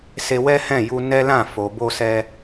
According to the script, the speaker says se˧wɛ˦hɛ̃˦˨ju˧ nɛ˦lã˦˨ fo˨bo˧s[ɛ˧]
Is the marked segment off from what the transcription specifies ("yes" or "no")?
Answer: no